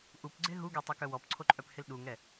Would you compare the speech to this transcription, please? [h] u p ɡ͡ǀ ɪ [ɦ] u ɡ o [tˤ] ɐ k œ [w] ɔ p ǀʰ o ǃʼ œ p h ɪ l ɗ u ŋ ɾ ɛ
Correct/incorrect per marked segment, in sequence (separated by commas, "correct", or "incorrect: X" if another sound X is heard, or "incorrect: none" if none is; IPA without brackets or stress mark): incorrect: ʔ, correct, correct, correct